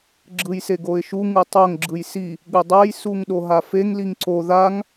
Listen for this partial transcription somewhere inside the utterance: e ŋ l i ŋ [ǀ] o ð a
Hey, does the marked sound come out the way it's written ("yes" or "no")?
yes